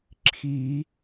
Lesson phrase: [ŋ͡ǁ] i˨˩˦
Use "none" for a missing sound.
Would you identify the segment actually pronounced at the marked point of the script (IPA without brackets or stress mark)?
ǁʰ